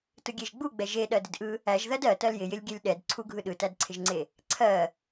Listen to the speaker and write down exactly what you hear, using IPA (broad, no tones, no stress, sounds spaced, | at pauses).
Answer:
t ɯ ɡʲ e ʒ ɡ͡b u ɡ͡b ɛ ʒ e ɗ ɜ d ɪ d ʔ ɯ | æ ʒ ð ɜ d ɜ t ɜ l j ɪ j ɪ lʲ ɡʲ ɛ lʲ ɗ ɛ d ǀʰ u ɡʱ ɯ ɗ ɯ t æ d ǀʰ ɪ ʒ ŋ͡ǀ e | ǀʰ ɜ